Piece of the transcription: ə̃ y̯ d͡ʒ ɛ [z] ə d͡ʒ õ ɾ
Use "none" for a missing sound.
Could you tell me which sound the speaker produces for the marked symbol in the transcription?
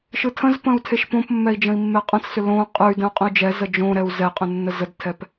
z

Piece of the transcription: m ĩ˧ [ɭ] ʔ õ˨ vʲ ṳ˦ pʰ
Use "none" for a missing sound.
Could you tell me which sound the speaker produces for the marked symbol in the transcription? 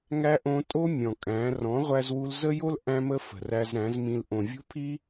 l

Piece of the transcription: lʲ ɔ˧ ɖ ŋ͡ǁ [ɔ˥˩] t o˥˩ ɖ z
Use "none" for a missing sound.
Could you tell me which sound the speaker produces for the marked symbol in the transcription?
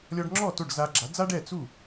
ɔ˥˩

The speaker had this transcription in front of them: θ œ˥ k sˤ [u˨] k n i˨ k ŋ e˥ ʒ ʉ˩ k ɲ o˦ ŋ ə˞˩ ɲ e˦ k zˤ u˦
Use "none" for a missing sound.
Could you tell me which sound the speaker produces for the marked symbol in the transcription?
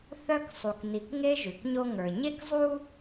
u˨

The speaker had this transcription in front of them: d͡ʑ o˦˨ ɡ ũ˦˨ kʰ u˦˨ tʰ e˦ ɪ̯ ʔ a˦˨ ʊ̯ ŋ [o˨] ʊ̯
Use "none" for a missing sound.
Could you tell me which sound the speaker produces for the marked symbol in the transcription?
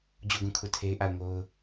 o˦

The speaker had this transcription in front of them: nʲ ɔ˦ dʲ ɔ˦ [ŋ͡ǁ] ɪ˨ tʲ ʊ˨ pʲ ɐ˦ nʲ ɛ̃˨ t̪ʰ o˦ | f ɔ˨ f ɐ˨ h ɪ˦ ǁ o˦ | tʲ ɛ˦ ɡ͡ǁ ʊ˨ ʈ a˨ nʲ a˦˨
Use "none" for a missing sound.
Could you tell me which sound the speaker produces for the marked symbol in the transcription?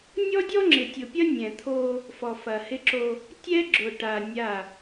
ŋ͡ǁ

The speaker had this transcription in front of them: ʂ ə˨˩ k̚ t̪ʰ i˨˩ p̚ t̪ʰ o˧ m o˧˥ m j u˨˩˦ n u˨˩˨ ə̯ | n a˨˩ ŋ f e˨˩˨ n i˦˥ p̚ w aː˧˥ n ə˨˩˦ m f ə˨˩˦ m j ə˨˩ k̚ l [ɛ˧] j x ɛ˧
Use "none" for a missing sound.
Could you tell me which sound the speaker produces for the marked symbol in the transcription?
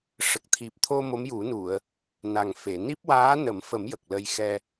ə˧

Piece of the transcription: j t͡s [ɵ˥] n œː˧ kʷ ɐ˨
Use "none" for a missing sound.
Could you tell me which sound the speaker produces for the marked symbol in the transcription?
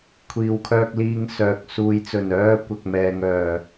ɵ˨˩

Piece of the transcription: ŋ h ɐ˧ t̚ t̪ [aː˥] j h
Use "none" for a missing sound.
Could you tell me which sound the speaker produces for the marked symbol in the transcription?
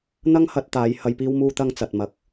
aː˨˧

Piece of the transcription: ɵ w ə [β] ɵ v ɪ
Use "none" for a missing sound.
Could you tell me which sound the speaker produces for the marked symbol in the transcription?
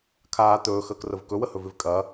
h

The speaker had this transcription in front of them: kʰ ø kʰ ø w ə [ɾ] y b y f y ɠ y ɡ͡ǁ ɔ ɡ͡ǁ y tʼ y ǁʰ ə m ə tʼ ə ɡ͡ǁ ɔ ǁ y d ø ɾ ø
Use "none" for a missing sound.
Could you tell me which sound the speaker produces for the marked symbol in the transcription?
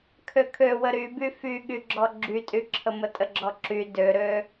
ɾ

